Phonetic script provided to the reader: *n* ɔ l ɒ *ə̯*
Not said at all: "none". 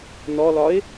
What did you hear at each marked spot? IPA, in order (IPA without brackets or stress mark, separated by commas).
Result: n, ɪ̯